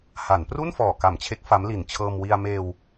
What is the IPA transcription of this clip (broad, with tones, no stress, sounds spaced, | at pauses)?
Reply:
h a˩˦ n p r u˥˩ n f ɔː˨˩ k a˨˩ m t͡ɕʰ e˦˥ k̚ f a˦˥ m l i˨˩ n t͡ɕʰ ɤː˧ m w i˧ a̯ m eː˧ w